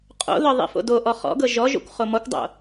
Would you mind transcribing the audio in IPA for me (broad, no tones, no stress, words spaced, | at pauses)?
qʼo̰ðɤ ðˤḭfo̰doʔɔ χɔ̰ɡɤ ʒɔʒo̰kʷ χomɔkʷdˤo̰